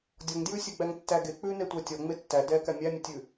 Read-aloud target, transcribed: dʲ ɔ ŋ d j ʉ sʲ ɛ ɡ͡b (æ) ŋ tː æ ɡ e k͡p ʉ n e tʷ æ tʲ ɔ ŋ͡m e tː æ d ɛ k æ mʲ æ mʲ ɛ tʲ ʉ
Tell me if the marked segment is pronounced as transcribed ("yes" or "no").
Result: yes